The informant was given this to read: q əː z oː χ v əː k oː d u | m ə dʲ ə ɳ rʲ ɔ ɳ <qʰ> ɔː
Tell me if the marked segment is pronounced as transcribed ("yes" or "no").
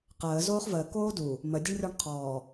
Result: yes